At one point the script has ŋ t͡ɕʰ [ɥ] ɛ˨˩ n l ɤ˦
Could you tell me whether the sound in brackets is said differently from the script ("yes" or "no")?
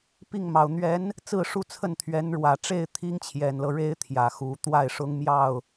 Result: yes